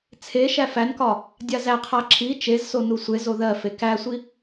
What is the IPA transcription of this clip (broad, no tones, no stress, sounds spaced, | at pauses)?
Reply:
t͡sʰ e ʃ æ f æ n k ɒ | dʲ a z æ qʰ a ǁʰ i t͡ʃ e z s o n u sʷ e z o ð ɜ f e k æ sʷ i